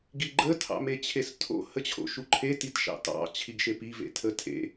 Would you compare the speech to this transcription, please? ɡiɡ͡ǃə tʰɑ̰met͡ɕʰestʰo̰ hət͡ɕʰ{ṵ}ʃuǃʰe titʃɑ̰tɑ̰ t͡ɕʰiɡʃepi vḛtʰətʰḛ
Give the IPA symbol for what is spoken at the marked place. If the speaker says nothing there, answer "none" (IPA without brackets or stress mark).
o̰